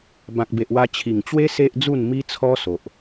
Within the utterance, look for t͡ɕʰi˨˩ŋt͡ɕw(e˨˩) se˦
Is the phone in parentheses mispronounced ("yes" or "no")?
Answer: yes